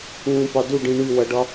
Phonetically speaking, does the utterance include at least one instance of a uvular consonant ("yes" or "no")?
no